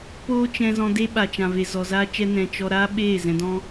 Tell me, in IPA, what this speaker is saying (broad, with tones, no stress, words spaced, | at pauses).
poː˦t͡ʃɛ̃˧ zɔ̃˧ de˦ ɓa˨t͡ʃã˨ve˨ zɔ˨zaː˦t͡ʃɛ˦ nɛ̃˧ t͡ʃɔ˧ɾa˦ɓeː˦˨ zɛ̃˧dɔ̃˦